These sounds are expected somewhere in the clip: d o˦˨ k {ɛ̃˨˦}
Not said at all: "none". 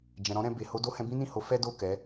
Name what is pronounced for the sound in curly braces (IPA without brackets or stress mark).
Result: ɛ˨˦